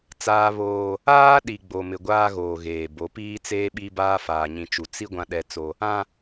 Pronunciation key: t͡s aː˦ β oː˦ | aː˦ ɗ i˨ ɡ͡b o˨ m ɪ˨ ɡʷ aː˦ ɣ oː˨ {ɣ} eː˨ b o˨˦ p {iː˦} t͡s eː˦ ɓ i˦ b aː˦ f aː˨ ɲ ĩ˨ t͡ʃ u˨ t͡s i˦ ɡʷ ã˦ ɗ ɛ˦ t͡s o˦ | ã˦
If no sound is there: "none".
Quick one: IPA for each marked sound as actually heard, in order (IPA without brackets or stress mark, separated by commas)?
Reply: ɣ, iː˦